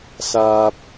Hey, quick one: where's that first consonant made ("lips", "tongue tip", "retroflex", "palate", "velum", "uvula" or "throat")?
tongue tip